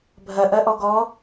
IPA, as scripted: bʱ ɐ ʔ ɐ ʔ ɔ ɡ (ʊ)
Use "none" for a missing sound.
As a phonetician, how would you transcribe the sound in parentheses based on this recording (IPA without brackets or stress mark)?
ɔ